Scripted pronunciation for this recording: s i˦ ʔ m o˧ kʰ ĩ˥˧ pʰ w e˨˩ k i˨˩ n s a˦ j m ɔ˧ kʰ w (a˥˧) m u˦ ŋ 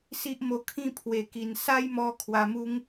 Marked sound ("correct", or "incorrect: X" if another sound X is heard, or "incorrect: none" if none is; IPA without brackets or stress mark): incorrect: a˧